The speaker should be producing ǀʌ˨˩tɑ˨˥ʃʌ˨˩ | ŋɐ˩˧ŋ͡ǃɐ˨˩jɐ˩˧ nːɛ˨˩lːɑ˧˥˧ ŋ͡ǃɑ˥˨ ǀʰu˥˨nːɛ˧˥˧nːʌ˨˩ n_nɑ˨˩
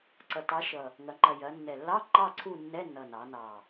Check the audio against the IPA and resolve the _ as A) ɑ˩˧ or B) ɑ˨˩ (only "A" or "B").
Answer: A